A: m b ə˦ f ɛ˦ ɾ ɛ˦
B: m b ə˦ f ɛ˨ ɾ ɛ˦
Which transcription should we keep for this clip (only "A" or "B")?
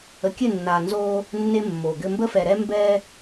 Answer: B